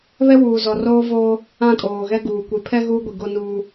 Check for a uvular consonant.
absent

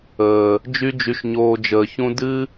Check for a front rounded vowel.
present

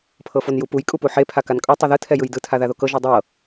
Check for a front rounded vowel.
absent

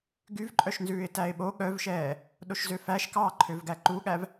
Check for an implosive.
present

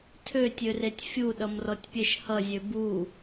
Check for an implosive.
present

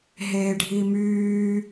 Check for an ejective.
absent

